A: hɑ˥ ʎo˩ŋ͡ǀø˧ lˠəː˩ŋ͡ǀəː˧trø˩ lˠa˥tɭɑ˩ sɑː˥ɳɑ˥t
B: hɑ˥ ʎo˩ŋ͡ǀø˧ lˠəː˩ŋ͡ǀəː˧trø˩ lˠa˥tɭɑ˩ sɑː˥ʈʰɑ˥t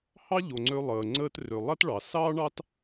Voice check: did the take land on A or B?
A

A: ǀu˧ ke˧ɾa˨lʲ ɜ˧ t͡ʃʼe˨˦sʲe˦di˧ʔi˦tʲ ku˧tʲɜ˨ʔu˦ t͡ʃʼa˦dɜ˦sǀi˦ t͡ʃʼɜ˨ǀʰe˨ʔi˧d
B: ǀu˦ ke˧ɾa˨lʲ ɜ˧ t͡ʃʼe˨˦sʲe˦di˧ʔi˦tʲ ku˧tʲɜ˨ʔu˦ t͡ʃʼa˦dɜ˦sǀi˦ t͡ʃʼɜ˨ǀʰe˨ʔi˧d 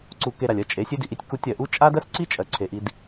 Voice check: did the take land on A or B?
A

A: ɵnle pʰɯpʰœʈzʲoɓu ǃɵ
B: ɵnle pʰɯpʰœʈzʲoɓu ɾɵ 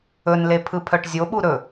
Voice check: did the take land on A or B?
B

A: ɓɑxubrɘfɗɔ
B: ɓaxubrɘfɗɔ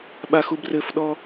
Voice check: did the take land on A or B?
B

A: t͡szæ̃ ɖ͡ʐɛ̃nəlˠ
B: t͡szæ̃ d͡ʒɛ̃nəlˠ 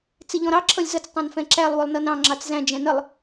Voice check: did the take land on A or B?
B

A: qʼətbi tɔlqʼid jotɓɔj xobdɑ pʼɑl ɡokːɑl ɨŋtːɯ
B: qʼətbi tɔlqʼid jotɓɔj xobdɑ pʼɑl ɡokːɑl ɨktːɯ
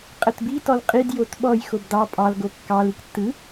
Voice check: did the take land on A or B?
B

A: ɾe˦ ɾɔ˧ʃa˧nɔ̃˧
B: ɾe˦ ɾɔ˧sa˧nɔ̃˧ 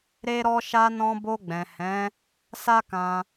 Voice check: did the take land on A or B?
A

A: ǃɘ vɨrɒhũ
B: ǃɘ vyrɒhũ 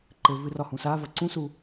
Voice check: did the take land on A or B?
A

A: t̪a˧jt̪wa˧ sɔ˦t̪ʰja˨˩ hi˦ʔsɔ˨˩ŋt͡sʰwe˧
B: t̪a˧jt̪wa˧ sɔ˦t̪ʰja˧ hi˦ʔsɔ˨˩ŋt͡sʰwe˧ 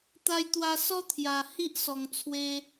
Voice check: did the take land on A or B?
A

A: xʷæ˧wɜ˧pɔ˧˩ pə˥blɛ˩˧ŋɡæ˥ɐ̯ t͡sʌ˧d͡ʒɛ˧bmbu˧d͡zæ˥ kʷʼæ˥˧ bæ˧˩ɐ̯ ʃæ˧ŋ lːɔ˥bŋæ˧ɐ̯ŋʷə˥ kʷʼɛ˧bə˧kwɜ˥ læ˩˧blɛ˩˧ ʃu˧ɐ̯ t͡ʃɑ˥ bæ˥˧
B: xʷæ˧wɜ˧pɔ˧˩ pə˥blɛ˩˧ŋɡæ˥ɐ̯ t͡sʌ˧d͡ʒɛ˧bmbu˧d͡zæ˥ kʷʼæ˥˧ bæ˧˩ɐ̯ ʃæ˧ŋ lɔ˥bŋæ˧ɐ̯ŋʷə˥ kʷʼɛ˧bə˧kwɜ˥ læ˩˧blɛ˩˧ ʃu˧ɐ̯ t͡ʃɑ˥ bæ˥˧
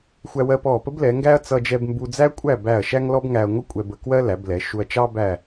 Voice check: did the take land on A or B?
B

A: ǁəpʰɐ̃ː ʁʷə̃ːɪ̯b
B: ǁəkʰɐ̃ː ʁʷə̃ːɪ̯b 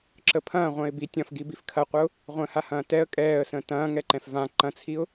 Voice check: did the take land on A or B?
A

